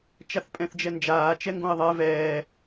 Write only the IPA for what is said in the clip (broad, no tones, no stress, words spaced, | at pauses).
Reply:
t͡ʃaθpʼɛ̃θd͡ʒɛnd͡ʒaː t͡ʃɛŋɡõɪ̯ðˤɛ vɛː